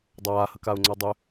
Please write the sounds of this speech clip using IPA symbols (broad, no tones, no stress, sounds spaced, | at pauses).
dˤ aː h ə k a ʊ̯ ŋ͡ǀ a dˤ ʏ